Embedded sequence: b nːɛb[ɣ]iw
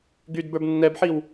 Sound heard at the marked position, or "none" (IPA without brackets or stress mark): ħ